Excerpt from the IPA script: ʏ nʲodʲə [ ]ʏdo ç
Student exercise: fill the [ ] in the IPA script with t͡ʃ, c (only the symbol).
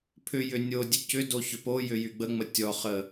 c